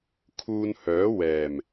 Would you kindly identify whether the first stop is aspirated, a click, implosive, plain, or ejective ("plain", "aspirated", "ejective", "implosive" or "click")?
aspirated